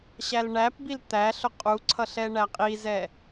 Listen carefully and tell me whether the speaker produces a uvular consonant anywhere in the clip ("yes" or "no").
yes